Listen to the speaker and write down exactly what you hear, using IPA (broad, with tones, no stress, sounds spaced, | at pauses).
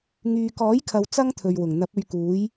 ŋ yː˨ k ɔː˨˥ j kʰ ɐ˨ w t͡s ɐ˥ ŋ t̪ʰ ɵ˨ ɥ w ʊ˨˩ ŋ n̪ ɐ˨˥ p̚ ɵ˧ ɥ k uː˨˥ j